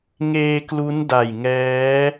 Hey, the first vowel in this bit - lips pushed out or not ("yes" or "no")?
no